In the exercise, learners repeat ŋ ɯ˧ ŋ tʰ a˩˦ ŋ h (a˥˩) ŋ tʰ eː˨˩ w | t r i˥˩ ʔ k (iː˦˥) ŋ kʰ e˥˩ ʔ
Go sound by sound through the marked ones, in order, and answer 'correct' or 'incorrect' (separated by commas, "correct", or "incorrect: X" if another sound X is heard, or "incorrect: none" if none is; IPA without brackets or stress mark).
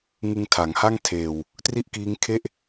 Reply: correct, correct